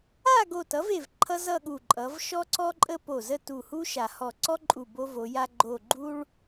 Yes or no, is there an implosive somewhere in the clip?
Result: yes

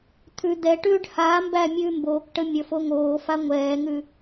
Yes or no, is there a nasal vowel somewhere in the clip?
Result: no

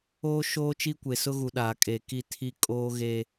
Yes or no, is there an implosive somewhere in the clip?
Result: yes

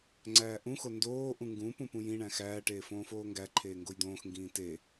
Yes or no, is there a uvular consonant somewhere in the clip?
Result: no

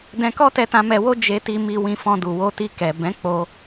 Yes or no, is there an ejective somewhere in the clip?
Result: no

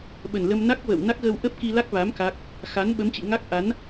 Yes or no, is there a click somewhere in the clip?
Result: no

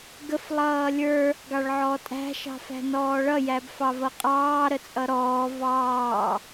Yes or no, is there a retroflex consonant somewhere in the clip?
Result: yes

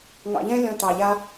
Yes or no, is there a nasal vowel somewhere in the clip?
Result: yes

